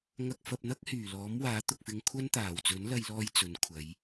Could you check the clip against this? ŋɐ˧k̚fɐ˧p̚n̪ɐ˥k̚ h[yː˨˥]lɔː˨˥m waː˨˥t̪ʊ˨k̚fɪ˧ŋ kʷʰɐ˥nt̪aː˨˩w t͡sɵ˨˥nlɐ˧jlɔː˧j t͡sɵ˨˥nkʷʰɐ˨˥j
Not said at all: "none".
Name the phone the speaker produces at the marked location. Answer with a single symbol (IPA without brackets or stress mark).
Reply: yː˨˩